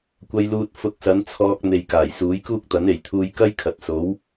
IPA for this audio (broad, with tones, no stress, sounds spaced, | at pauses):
kʷ ɐ˧ j l uː˧ t̚ f ʊ˧ k̚ s ɐ˨˥ n t͡sʰ ɔː˧ k̚ n̪ e˨ j k aː˨˩ j s uː˨˥ j k uː˥ k̚ t̪ ɐ˨˥ n e˨˩ j t̪ʰ uː˧ j k ɐ˥ j kʰ ɐ˨ t̚ s o˨˥ w